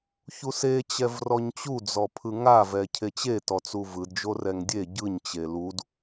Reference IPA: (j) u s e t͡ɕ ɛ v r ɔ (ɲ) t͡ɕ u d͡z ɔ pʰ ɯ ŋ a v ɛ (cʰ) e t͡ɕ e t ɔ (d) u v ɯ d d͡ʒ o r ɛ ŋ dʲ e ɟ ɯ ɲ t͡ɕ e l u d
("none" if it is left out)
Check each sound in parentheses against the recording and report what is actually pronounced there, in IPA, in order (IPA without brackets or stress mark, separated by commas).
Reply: ç, ɲ, cʰ, t͡s